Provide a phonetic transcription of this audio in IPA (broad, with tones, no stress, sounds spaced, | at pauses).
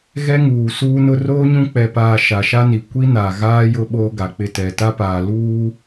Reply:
ɣ ɛ˦ ŋ uː˨ s uː˦ n ʊ˦ r oː˦ ɲ ũ˦ k͡p ɛ˨ p aː˨ ʃ a˨ ʃ a˦ n i˨ kʷ i˦ n a˨ ɣ aː˦ j ʊ˦ ɓ oː˦ ɡ a˨ k͡p ɪ˦˨ t ɛ˨ t a˦ p aː˨ l uː˦